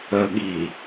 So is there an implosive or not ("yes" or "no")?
yes